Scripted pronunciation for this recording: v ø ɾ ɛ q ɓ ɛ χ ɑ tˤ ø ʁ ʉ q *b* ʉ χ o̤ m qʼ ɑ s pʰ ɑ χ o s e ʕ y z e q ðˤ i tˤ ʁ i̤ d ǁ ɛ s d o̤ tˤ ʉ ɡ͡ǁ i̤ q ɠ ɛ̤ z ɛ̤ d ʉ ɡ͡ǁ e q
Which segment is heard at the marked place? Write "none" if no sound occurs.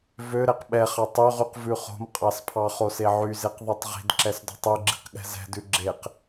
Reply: v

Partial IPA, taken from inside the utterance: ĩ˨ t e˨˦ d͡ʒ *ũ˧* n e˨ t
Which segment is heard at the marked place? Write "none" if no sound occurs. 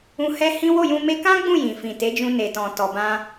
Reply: ũ˧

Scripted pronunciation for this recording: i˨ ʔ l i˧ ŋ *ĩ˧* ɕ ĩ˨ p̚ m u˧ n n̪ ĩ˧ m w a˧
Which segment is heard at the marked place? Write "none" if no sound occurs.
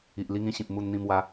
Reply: ĩ˧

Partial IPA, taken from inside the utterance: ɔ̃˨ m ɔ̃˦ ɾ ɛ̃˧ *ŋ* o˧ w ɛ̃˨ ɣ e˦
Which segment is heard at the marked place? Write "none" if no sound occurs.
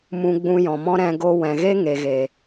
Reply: ɡ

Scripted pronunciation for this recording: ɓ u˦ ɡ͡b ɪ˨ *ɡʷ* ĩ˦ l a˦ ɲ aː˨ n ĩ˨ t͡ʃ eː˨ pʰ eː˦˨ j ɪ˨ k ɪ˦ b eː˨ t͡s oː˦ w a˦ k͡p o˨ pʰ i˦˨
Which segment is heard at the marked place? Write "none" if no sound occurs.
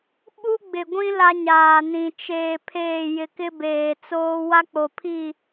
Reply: ɡʷ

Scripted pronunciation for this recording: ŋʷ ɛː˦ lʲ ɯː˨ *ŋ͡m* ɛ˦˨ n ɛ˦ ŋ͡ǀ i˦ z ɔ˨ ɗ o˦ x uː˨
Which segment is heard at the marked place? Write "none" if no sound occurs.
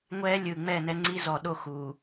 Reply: ŋ͡m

